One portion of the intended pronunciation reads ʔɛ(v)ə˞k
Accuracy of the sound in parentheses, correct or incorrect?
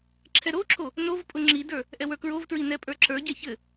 incorrect